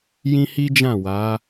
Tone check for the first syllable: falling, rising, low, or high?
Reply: high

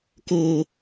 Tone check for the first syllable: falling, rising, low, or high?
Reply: high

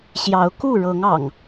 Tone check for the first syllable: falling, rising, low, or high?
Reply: rising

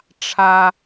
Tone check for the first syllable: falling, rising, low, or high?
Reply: high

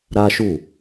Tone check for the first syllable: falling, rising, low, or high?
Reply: high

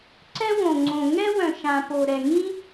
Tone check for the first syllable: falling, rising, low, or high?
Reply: high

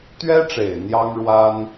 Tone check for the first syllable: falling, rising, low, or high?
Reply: high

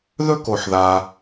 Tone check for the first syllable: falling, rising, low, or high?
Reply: high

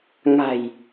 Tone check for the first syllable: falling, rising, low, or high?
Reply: low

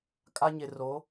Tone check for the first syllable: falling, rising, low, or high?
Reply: high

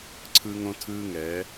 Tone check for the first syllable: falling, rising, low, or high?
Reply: high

